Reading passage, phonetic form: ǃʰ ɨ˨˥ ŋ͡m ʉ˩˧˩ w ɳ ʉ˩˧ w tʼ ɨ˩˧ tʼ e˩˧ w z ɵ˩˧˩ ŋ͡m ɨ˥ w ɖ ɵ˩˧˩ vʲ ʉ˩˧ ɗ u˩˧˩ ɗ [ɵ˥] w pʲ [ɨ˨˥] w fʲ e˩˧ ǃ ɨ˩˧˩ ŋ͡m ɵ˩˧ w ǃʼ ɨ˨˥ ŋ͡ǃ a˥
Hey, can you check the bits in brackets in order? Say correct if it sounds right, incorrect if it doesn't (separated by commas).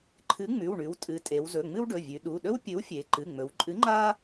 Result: correct, correct